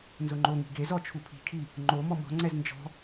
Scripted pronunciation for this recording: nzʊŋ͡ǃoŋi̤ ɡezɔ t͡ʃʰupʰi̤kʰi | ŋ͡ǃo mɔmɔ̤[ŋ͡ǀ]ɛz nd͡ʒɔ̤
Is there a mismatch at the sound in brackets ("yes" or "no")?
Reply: no